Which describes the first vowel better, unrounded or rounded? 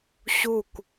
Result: rounded